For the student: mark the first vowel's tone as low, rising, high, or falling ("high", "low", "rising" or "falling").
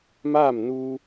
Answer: falling